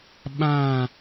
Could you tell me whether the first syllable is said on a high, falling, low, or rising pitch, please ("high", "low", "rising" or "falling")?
falling